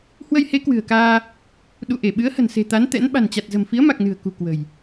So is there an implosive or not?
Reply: yes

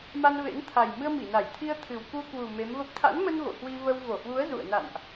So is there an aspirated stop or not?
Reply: yes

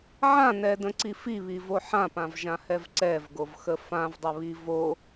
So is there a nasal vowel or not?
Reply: yes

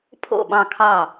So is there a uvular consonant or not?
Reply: no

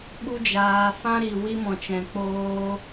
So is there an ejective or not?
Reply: no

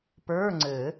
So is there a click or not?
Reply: yes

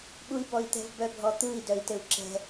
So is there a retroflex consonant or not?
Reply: no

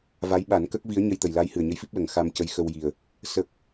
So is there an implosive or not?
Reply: yes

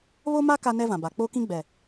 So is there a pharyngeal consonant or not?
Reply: no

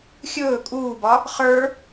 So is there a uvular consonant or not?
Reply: yes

